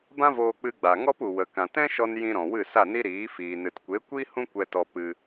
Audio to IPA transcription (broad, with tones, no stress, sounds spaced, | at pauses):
b ã˦ v oː˧ k͡p ɨ˧ ɡ͡b a˨ ŋ ɔ˦ p u˨ w ə˨ k ã˨ t ɛ̃˦ ʃ ɔ˧ n j ĩ˧ ɾ ɔ̃˨ w ɨ˦˨ s a˦˨ n i˦ ɾ iː˨˦ f iː˨ n ɨ˨ t kʷ e˨˦ kʷ i˦ h ũ˦ kʷ ɛ˧ t ɔ˧ p ɨ˧